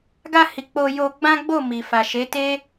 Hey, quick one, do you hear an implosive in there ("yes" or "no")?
no